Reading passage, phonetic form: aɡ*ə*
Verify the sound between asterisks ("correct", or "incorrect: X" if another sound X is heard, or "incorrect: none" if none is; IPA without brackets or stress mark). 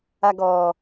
incorrect: ɔ